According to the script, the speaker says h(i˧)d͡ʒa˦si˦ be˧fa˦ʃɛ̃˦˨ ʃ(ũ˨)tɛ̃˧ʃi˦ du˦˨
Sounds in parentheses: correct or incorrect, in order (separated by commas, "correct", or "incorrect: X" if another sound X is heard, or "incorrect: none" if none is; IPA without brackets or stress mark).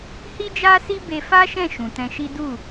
incorrect: i˦, correct